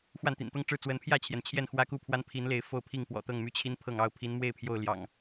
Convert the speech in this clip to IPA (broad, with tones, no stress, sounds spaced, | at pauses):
x w a˥˨ n t̪ ḭ˨˩ n t̪ ɤ˦ ŋ ʈ͡ʂ ɻ̩˥˨ t͡s w ə˨˦ n pʰ j ä˥˨ t͡ɕʰ j ɛ˩ n t͡ɕʰ j ɛ˥˨ n x w ä˦ k u˥˨ pʰ w a˦ n pʰ i˨˦ n l e˨˦ ɪ̯ f o˥˨ ʊ̯ pʰ i˥˨ ŋ p w ɔ̰˨˩ t̪ ɤ˥˨ ŋ m y˦ t͡ɕʰ i˦ n pʰ ɤ˥˨ ŋ ɑ˥˨ ʊ̯ pʰ i˨˦ n m w e˥˨ ɪ̯ pʰ j o˥˨ ʊ̯ l j ɑ̰˨˩ ŋ